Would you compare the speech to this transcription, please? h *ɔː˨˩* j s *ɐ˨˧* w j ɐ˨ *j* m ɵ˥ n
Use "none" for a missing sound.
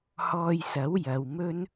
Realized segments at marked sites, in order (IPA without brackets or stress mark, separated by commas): ɔː˧, ɐ˨˥, w